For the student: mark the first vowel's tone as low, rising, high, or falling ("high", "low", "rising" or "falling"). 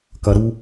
low